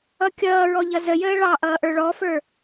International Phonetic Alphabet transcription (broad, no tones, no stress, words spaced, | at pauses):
ʌkʲʌːɹɔ ʎʌzəjəː ɭɑʔʌː ʔə˞ɭɔfə˞